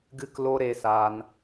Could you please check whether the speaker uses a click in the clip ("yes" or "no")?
no